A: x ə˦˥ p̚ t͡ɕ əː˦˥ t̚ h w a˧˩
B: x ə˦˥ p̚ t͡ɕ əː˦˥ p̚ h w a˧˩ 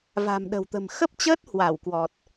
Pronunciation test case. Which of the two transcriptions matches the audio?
A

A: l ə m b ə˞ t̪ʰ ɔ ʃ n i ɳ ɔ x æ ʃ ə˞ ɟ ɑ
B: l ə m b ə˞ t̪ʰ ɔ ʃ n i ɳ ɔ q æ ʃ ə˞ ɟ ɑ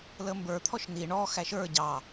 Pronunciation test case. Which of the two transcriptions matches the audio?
A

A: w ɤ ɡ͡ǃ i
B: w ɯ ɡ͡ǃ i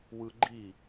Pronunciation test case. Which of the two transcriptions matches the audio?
B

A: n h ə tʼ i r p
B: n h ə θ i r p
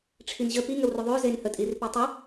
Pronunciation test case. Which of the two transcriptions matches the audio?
A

